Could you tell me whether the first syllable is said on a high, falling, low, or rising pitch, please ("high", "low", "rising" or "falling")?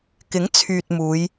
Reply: rising